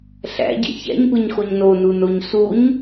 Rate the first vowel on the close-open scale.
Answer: open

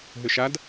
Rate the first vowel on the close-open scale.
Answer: close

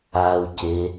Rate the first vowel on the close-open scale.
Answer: open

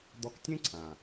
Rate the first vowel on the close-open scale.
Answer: mid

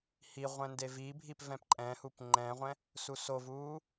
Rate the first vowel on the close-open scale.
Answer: close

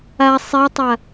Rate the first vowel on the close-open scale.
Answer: open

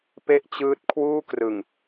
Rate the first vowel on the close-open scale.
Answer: mid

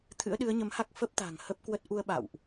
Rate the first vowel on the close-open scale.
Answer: close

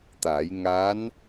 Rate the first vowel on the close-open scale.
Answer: open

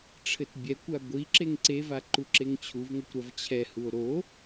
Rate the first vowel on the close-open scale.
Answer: mid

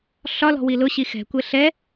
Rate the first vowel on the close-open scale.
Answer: open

